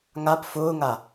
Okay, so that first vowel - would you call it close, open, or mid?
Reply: open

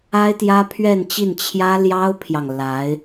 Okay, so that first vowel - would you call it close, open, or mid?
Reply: open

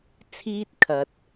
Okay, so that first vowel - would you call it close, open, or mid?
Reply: close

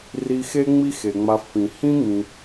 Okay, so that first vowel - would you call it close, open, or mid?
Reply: close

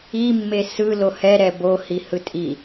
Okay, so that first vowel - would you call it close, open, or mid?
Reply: close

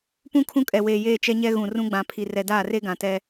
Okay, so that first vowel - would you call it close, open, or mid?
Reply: close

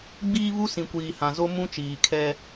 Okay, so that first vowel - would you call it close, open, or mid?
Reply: close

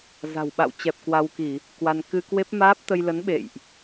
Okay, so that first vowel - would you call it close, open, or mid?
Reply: open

